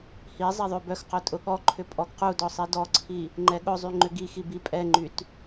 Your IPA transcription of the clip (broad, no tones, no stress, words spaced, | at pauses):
hi zˤɛðˤøbœxqœ tʼʊɠɔǃʰʏ pʼɔɡqudɔ sˤidɔǀʰi | ŋ͡ǃɛɠʊzˤy ŋ͡ǃʏɡixi bipʼɛŋ͡ǃyt